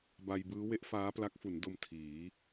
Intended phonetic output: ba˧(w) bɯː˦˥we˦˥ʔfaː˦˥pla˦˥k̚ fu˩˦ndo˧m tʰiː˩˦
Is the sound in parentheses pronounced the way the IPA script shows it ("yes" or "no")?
no